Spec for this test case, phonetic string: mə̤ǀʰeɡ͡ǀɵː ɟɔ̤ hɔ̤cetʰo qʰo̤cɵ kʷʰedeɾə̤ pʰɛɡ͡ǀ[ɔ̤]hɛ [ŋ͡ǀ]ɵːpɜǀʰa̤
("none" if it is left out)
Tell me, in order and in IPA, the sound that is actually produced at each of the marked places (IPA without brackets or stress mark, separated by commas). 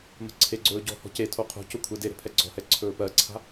ɔ̤, ǀʰ